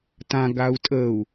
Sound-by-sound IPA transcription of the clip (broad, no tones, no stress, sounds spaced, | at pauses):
t ã ɡ a u̯ tʼ ə u̯